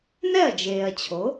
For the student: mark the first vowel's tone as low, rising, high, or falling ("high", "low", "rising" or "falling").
falling